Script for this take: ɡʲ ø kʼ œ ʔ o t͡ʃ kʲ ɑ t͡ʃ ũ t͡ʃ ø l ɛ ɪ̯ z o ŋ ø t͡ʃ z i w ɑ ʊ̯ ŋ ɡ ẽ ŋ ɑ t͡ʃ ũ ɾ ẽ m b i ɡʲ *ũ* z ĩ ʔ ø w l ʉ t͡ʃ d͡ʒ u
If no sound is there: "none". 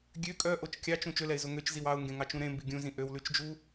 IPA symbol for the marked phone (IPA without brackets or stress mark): ũ